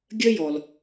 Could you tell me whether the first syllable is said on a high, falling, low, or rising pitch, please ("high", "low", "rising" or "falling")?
high